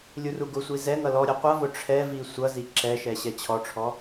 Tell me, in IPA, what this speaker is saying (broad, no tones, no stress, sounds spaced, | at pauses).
lʲ u r u ɡ ʊ sʷ i z ɛ ŋ ʌ l ɔ ɾʲ ɛ qʷ ʌ v ʊ ʈ͡ʂʰ ɛ v i sʷ ʌ z i ǁ ɛ ʃ ɛ ɕ ɛ t͡ɕʰ ɔ ʈ͡ʂʰ ɔ